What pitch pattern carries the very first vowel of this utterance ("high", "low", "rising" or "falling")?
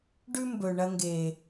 high